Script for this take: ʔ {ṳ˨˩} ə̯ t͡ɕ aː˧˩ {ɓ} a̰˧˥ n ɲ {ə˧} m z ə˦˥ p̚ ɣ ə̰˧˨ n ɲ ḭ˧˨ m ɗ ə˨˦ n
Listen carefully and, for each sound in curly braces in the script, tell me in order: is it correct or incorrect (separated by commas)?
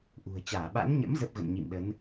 correct, correct, incorrect